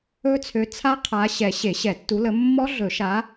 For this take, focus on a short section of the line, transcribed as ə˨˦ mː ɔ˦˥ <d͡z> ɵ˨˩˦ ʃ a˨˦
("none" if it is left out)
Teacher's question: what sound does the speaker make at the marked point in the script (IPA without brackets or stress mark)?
ɮ